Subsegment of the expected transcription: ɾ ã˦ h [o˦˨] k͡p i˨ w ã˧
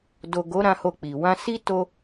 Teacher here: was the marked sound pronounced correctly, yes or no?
yes